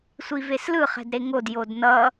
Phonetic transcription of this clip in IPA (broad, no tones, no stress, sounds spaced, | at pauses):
sʷ i v e s l ɯ χ ɛ̤ d ɾ e ŋ o d j o d n ʌ